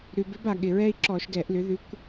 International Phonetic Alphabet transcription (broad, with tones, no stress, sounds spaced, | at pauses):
ɾ ʉ˩ b ɪ˧˥ b a˩ ɠ ɪ˩ ɹ ɛ˥ i̯ ǁ ɔ˧˩˧ ʃ ɡ ɛ˧˩˧ ʔ l ʏ˩˥ ð ʉ˧˥ kʷ